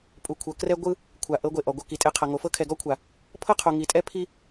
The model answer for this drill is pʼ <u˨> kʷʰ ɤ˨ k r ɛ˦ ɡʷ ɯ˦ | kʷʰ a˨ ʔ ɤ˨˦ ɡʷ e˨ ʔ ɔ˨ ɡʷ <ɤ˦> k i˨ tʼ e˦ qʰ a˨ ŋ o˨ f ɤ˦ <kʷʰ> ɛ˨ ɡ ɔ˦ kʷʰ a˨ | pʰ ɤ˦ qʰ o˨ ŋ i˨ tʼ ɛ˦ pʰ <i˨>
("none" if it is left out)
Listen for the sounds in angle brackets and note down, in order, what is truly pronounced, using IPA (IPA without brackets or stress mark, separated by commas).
u˨, ɤ˦, kʰ, i˦